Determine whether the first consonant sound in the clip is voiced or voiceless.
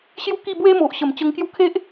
voiceless